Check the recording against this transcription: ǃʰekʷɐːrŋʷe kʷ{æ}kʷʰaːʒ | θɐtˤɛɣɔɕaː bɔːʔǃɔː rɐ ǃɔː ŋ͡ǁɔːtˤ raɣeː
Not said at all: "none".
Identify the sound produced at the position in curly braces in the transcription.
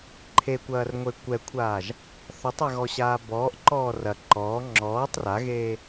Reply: ɛ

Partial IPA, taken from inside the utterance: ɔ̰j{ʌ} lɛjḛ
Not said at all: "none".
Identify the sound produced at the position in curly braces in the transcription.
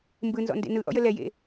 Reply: ə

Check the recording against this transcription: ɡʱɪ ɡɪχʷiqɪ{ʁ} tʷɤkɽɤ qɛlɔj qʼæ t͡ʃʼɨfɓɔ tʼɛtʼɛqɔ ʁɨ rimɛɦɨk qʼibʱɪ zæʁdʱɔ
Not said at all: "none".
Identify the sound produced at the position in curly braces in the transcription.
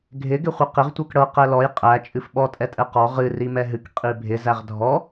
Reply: ʁ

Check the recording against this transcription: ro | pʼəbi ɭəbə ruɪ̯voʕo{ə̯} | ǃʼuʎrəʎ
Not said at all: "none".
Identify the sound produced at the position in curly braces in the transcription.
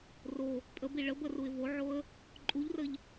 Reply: ə̯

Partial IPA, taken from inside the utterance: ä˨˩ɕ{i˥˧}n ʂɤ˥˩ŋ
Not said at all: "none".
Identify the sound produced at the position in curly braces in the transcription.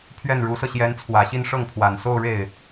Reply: i˥˧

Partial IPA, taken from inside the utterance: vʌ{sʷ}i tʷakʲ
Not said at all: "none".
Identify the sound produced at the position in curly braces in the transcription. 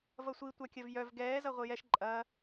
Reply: sʷ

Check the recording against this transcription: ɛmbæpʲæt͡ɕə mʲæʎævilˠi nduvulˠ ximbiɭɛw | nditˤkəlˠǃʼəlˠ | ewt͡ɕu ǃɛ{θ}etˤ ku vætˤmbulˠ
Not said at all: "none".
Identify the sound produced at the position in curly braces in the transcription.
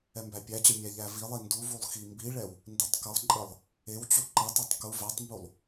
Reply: tˤ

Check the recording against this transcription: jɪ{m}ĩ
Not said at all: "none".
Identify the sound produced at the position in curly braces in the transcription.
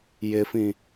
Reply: f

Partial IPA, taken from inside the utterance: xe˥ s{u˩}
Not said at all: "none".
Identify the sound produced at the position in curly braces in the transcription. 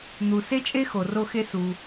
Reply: u˩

